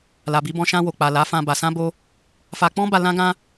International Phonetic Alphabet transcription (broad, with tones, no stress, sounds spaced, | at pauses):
l a˨ b i˧ b ɔ̃˧ ʃ ã˧ w o˨ k͡p a˨ l a˨˦ f ã˧ b a˨ s ã˧ b o˧ | f a˧ k͡p ɔ̃˦ b a˧ l ã˦ ɡ ã˦